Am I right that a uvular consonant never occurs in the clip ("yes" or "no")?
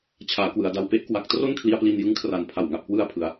yes